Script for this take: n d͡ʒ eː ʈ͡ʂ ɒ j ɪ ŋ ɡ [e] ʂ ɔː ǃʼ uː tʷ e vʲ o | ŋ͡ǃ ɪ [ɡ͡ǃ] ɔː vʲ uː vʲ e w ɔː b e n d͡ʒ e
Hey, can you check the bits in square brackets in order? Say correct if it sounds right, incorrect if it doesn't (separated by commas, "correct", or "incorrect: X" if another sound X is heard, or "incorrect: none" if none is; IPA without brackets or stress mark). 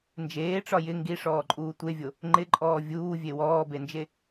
incorrect: i, incorrect: ǃʼ